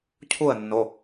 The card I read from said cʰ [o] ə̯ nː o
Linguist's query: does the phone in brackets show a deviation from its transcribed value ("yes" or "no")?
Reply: yes